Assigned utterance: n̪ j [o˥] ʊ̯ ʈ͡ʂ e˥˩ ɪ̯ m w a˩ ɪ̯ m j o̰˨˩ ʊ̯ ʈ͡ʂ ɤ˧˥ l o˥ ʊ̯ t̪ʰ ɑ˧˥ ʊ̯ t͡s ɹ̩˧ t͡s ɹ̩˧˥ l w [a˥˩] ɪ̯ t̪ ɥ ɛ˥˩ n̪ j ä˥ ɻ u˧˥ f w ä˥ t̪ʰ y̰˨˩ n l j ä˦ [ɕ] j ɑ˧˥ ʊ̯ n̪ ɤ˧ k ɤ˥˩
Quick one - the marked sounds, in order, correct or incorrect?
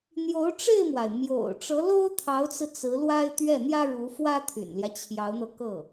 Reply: incorrect: o˧˥, incorrect: a˥, incorrect: t͡ɕʰ

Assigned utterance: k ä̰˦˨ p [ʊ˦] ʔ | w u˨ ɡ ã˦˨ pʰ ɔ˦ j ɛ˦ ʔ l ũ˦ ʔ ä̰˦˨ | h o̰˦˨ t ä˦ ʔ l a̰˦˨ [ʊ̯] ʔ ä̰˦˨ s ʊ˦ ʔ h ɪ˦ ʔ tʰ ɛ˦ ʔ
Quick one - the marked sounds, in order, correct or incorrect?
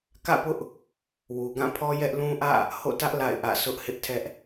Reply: correct, incorrect: ɪ̯

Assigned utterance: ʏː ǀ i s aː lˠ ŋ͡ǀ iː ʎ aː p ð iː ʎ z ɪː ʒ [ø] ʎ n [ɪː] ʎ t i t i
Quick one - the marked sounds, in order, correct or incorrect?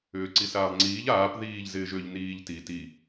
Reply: correct, incorrect: iː

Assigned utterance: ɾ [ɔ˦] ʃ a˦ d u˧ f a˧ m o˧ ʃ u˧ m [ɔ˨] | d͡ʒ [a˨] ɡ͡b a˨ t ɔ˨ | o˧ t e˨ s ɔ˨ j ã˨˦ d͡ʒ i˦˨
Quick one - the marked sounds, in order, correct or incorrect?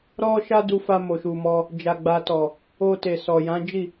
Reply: correct, incorrect: ɔ˦, correct

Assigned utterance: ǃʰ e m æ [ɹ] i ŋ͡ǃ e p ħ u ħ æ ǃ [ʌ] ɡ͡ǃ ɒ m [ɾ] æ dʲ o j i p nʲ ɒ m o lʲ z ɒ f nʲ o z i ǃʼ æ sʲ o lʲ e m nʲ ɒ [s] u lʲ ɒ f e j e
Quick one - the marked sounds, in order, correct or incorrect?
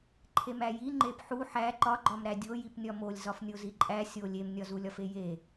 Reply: incorrect: j, incorrect: ɒ, correct, incorrect: z

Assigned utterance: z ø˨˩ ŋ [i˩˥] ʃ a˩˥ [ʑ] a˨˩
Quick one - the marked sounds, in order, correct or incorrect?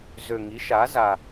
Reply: correct, incorrect: z

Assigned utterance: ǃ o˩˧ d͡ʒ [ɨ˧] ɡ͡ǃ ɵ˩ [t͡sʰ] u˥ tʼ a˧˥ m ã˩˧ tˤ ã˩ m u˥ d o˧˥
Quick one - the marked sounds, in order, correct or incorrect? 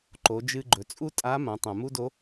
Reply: correct, incorrect: t͡sʼ

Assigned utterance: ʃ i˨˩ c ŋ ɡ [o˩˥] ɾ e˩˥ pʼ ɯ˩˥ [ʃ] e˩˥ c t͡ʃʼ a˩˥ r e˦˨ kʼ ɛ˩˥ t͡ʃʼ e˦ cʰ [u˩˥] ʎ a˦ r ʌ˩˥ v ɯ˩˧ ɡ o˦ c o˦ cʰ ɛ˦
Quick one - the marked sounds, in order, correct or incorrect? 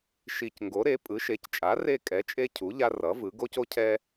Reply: correct, correct, correct

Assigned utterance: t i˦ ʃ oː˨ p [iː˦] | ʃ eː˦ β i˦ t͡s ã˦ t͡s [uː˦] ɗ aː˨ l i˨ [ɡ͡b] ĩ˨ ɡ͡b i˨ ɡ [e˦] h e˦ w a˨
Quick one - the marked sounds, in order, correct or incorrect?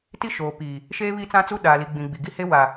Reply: incorrect: iː˨, incorrect: u˦, correct, incorrect: i˦

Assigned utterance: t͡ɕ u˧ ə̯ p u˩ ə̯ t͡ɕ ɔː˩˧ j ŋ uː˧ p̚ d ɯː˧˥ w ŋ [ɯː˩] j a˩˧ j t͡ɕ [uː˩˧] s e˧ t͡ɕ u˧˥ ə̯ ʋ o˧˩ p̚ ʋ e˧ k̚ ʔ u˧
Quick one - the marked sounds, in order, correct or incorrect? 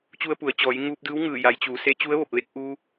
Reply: incorrect: ɯː˧˩, correct

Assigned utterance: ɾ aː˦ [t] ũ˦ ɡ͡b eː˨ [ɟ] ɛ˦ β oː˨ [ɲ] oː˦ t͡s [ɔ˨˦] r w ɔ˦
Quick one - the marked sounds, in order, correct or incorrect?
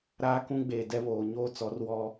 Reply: incorrect: k, incorrect: d, correct, correct

